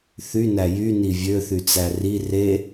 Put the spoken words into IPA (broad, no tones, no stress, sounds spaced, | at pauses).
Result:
θ y n æ j y n i vʲ ø θ y t͡s æ r i r e